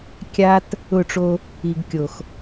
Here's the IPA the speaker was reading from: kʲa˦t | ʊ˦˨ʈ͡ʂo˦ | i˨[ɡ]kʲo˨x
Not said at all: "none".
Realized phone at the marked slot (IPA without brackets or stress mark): ɡ